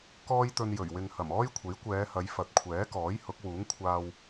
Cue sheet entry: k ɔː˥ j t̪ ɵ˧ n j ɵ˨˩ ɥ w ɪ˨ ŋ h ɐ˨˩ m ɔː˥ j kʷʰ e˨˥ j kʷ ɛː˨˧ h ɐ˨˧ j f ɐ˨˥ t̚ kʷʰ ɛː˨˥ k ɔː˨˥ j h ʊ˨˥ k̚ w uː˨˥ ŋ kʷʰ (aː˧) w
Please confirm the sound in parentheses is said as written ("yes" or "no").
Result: yes